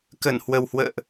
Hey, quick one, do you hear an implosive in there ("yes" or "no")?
no